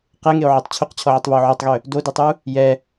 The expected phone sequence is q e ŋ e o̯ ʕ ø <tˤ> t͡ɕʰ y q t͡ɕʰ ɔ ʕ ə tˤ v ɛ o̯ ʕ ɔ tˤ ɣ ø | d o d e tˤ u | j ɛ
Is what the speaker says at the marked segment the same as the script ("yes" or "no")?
yes